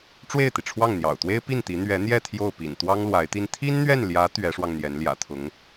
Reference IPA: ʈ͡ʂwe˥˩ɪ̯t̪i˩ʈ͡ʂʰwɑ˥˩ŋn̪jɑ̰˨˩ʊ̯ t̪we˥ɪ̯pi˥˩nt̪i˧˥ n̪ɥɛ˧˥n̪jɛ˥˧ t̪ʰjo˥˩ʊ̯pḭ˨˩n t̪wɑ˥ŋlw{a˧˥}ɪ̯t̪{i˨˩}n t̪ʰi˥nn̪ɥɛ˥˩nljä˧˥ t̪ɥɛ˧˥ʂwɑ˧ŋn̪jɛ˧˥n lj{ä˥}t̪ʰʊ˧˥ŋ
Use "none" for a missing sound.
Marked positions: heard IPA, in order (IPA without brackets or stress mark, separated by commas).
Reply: a˧˥, i˥, ä̰˨˩